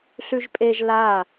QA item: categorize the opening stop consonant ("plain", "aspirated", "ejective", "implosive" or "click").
ejective